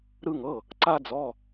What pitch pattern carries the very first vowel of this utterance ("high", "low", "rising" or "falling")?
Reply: high